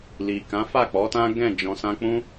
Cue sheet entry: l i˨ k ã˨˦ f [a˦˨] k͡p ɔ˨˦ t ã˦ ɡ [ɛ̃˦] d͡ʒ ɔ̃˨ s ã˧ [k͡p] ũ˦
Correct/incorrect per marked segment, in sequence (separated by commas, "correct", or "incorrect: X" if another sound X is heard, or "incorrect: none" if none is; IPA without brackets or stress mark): correct, incorrect: ɛ̃˦˨, correct